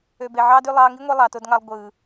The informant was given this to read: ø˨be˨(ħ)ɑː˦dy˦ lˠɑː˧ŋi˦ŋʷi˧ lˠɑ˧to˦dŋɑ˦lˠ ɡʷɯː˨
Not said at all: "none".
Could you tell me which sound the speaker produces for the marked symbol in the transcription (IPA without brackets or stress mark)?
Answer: ʕ